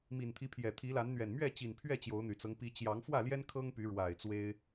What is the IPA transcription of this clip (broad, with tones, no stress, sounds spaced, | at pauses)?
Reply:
m i˨˩ n t̪ʰ i˨˦ pʰ j ɛ˨˩ t̪ʰ i˨˦ l a˨˦ n n̪ ɥ ɛ˨˩ n m ɥ ɛ˥˨ t͡ɕ i˨˩ n pʰ ɥ ɛ˥˨ t͡ɕ j o˨˦ ʊ̯ n̪ y˨˩ t͡s ɤ˦ ŋ p i˨˦ t͡ɕ j ɑ˨˦ ŋ f w ä˥˨ l j ɛ˦ n kʰ ɤ˦ ŋ p y˨˦ ɻ w a˨˩ ɪ̯ t͡s w e˦ ɪ̯